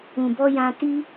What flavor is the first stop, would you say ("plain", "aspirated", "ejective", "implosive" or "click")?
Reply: plain